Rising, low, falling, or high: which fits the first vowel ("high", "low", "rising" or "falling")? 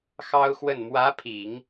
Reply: high